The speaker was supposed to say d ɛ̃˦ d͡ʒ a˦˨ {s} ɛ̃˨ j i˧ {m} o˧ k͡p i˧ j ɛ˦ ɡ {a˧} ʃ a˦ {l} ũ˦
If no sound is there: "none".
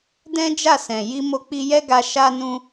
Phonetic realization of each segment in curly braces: s, m, a˧, n

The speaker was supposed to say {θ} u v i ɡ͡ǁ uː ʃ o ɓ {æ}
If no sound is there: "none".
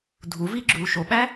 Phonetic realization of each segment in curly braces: dʱ, æ

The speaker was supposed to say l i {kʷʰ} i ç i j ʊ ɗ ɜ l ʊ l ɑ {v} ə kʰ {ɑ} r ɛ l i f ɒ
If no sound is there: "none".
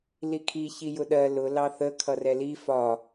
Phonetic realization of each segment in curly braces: kʰ, θ, ʌ

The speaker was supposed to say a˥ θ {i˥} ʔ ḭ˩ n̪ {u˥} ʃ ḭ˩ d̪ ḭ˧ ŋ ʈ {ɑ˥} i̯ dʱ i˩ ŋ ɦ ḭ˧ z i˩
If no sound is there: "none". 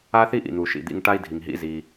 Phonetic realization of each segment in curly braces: i˥, u˩, a˥

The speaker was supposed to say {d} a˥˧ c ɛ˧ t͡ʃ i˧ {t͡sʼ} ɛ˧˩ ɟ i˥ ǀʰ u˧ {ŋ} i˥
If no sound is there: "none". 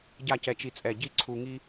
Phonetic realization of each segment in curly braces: ɟ, t͡sʼ, ŋ

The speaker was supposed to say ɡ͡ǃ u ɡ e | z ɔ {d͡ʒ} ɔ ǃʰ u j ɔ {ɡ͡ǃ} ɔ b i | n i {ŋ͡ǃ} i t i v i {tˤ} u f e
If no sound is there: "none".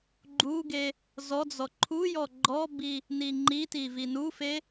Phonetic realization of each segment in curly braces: d͡z, ɡ͡ǃ, ŋ͡ǃ, n

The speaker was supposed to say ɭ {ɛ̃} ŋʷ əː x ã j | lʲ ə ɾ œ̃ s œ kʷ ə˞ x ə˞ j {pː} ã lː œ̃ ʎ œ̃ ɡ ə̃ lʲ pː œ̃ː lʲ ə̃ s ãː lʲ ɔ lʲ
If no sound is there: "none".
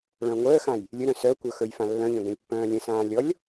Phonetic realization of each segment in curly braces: œ̃, f

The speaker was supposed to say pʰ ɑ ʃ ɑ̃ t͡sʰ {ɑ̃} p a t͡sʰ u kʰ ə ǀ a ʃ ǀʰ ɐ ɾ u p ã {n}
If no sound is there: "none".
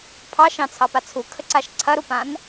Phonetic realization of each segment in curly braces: ɑ, n

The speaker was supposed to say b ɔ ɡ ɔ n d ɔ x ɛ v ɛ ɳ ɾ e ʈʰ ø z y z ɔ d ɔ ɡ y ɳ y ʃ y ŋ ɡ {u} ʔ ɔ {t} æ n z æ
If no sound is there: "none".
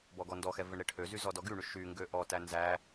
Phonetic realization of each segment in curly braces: ø, t

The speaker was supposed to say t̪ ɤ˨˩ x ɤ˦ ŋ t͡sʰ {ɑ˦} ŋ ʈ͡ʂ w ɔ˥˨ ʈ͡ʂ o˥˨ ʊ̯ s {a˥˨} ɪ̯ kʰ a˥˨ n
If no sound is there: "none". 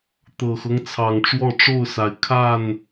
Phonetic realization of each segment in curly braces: ɑ˨˩, a˨˦

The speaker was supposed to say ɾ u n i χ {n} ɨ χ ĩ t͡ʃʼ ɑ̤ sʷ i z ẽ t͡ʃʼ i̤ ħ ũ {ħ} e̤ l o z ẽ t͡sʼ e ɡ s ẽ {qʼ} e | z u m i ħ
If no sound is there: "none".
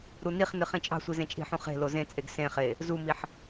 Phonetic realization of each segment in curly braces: n, χ, χ

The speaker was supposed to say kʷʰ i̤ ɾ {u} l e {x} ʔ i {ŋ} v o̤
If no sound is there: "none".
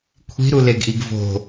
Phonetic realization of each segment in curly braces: u, ɡ, ɡ

